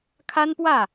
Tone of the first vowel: high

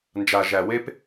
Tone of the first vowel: low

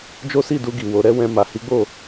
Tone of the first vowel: high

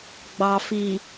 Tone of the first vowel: low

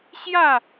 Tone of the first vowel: falling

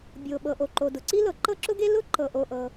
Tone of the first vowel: low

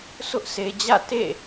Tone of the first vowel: high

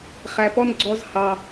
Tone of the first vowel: low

